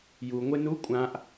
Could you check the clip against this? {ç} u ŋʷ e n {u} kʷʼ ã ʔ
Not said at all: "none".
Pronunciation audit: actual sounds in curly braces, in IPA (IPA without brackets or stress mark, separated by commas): j, u